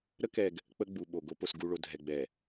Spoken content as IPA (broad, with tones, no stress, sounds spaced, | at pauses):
ɾ ə˦ k ɛ˨ ɡ | k͡p ə˦ ɡ͡b u˨ ɓ o˨ ɡ o˦ p o˨ s ɡ u˨ ɭ o˨ dʱ ɛ˨ ɡ͡b ɛ˨